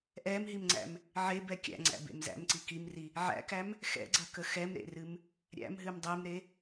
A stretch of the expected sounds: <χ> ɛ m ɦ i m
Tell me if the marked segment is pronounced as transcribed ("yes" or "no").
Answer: no